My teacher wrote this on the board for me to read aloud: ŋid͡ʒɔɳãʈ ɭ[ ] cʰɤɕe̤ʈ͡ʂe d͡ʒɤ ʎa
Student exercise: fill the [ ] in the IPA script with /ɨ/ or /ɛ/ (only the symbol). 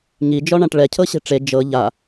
ɛ